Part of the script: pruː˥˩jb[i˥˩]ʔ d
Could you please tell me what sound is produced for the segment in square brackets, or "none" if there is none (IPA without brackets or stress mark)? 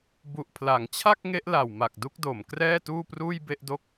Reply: e˥˩